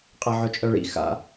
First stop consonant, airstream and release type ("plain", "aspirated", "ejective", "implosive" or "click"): ejective